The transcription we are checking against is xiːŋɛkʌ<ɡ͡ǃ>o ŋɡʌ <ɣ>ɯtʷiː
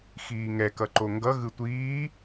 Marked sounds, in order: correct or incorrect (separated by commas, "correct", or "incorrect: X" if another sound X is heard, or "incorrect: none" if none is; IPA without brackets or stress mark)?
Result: incorrect: ǃ, correct